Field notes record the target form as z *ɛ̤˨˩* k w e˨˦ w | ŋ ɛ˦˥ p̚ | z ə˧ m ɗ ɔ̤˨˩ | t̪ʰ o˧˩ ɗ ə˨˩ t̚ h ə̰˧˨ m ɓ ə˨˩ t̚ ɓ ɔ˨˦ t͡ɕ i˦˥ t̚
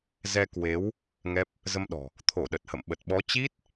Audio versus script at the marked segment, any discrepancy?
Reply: yes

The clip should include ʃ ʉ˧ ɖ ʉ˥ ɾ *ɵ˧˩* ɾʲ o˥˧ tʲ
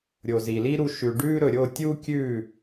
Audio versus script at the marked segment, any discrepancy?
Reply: yes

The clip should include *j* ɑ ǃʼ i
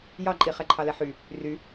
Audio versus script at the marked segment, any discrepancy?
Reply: no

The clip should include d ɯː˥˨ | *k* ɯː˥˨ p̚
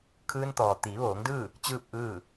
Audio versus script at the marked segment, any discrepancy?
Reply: yes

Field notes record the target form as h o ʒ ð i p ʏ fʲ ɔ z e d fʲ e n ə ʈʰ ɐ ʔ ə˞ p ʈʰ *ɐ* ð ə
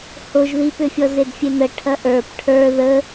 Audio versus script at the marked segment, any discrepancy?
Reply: yes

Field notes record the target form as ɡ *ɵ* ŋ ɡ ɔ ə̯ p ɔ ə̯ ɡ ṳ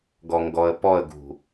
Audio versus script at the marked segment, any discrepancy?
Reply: yes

